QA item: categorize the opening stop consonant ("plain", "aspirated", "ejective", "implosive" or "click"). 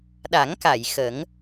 implosive